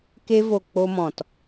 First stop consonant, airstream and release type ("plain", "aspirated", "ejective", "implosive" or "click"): plain